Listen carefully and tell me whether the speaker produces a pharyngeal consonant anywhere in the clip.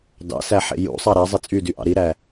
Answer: yes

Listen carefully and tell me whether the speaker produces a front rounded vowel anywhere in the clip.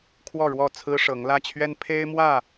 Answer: no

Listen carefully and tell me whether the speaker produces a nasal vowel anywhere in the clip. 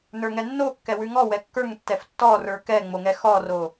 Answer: no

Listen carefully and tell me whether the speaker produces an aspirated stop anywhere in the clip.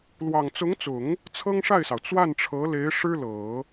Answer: yes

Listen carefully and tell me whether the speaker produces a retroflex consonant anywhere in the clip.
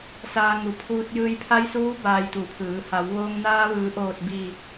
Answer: no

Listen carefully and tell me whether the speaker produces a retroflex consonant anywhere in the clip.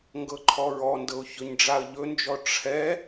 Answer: yes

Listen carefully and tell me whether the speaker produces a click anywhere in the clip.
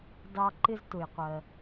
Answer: yes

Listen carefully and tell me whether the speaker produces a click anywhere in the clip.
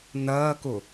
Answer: no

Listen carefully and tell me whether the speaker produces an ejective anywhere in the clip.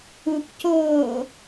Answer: no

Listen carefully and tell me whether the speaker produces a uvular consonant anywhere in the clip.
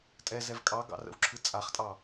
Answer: yes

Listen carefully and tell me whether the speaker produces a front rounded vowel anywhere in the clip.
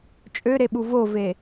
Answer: yes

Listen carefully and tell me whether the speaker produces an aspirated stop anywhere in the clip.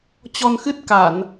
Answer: no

